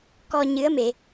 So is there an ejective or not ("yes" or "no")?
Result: no